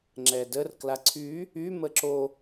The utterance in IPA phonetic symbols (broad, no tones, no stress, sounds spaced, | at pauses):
ŋ͡ǁ ɛ d ə r k l a ǀʰ y | y m ə ǁ o